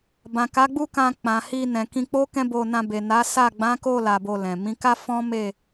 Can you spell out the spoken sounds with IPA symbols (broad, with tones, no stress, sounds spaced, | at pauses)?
b ã˨ k a˨˦ ɡ͡b u˦˨ k ã˧ k͡p ã˨ h i˧ n ɛ̃˨ k ĩ˧ k͡p o˦ k ɛ̃˦ b o˧ n ã˧ b e˨ n a˨˦ s a˦˨ ɡ͡b ã˨˦ k o˦˨ l a˧ b o˧ l ɛ̃˨ m ĩ˨˦ k a˦ f ɔ̃˦ m e˦˨